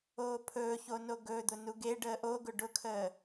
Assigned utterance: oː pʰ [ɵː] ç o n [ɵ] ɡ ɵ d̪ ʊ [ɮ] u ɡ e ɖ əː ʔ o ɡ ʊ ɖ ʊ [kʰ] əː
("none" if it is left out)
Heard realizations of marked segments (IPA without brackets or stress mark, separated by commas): ɵː, o, n, kʰ